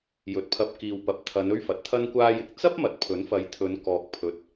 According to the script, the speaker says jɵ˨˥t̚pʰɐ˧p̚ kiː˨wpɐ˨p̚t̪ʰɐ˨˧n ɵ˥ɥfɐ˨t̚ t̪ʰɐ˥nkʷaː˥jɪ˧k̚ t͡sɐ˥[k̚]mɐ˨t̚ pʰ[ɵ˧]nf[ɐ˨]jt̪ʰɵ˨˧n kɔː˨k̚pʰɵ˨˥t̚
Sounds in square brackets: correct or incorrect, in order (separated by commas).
incorrect, incorrect, incorrect